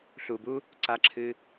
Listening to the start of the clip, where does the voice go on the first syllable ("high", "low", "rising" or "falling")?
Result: low